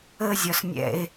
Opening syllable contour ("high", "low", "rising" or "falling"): high